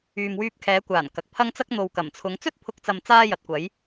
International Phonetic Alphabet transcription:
yː˨mwyː˧p̚kʰɛː˨˧kʷaː˨˩n kɐ˨k̚pʰɐ˥ŋt͡sɐ˥k̚ n̪o˨wkɐ˨˩mt͡sʰʊ˨˧ŋ t͡sɵ˥t̚pʰʊ˨˥k̚t͡sɐ˨m t͡saː˧ jɐ˨˥t̚kʷɐ˨˥j

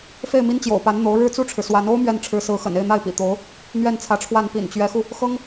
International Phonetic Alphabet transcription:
fe˥˩ɪ̯mi˥nt͡ɕjo̰˨˩ʊ̯pa˧˥n n̪o˧˥ʊ̯ ɻɻ̩˥ t͡su˥˩ʈ͡ʂʰɻ̩˩ swa˧˥n o˥ʊ̯ mɥɛ˥˩n ʈ͡ʂʰɻ̩˧˥sɹ̩˧˥xə̰˨˩n e˥˧ɪ̯n̪a˥˩ɪ̯pḭ˨˩t̪o˧˥ʊ̯ | n̪ɥɛ˥˩nt͡sʰä˧˥ʈ͡ʂʰwa˥˩n pḭ˨˩nt͡ɕɥɛ˧˥xu˧ | xɤ˥ŋ

